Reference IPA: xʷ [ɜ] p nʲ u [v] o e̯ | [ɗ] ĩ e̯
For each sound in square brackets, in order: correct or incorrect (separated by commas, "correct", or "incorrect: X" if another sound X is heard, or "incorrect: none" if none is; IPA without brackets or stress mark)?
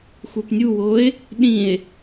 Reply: incorrect: ə˞, incorrect: w, correct